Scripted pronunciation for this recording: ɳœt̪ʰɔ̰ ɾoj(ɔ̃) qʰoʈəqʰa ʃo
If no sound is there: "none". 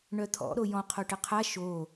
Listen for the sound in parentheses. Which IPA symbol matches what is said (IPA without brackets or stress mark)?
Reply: ɔ̃